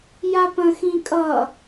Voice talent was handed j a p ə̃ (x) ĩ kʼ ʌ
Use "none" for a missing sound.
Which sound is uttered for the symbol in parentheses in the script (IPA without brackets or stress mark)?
x